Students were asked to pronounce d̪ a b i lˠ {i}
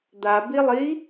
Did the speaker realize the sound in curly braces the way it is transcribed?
yes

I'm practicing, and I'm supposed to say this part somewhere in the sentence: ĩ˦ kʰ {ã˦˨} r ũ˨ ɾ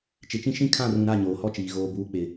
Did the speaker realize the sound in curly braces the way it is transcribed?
yes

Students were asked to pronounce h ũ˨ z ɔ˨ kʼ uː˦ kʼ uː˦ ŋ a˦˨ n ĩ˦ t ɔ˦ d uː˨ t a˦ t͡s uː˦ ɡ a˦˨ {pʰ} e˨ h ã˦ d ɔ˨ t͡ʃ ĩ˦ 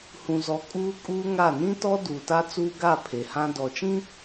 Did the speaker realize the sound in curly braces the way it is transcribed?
yes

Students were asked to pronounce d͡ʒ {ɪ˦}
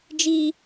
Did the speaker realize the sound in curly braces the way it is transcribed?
no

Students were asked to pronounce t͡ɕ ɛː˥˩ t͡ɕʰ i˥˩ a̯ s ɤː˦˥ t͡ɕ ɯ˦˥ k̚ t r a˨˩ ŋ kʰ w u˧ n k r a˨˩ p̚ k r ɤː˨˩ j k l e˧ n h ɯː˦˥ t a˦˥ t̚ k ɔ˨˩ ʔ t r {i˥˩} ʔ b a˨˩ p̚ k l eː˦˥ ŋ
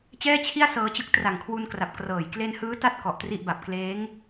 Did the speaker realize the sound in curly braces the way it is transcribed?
yes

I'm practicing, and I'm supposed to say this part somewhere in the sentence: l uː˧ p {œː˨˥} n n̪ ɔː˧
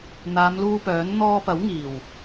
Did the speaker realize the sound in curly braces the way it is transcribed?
yes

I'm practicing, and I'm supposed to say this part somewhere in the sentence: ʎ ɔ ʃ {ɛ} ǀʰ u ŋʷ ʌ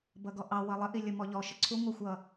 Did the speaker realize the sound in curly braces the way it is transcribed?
no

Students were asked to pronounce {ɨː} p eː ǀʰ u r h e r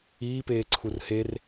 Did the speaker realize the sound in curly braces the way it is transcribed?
no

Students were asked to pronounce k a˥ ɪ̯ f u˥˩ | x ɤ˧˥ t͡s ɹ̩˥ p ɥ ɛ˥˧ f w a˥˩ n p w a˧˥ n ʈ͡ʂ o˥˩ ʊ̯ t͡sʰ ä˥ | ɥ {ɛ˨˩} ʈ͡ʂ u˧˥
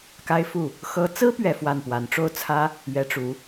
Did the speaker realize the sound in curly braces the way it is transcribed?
no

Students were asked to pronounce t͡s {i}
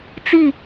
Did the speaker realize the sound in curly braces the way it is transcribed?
yes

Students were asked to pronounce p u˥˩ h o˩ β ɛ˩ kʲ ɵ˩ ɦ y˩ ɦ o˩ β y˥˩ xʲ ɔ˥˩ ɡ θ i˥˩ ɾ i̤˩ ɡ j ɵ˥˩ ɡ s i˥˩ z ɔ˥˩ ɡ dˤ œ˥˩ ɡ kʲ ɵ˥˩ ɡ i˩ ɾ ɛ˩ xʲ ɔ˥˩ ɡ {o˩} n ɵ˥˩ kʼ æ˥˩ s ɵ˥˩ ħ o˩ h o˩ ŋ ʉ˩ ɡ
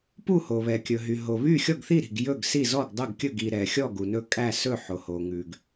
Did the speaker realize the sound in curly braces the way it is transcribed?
no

